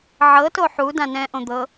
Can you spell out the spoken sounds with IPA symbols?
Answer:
ʕ ɤ t o ħ u d ã n ɛ̃ ʔ õ d̪ ɤ

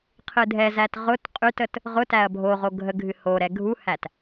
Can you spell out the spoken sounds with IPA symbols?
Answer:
qʰ ɨ dʱ ɛ z æ t ʁ ʊ t qʼ y t ə t | ʁ ʊ t æ ɐ̯ bʱ o ʁ o ɡʱ ə ɡʱ ɨ h o ɾ ɛ ɡʱ u h æ t

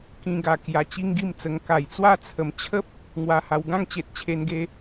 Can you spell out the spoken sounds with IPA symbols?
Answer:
k ĩ˧ ɡ a˨˩ k j a˧ t͡ɕ i˦ ŋ ɡ i˥˧ m t͡s ə˧ ŋ k a˨˩ j t͡s w a˥˧ t͡sʰ ə˨˩ m t͡ɕʰ ə˦ p̚ | ŋ w a˧ h a˧ w ɡ ã˥˧ ŋ t͡ɕ e˨ t̚ t͡ɕʰ e˧ n ɡ e˧

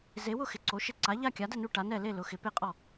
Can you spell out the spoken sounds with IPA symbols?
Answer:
z e˨˥ w ʊ˥˧ x ɪ˨˥ ǀ o˨˥ ʃ ɪ˥˧ ǀ a˨˥ ʎ a˥˧ kʲ a˨˥ d ɛ˥˧ n u˥˧ ʈ a˨˥ n ɛ˥˧ l e˥˧ l ʊ˨˥ x ɪ˨˥ p e˥˧ qʼ ɔ˥˧

